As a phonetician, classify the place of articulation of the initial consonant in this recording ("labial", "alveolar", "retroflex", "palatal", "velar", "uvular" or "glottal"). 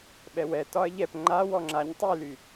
labial